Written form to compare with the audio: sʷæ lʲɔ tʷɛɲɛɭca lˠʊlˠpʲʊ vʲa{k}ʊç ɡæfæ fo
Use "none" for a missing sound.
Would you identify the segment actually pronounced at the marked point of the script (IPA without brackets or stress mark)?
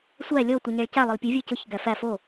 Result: c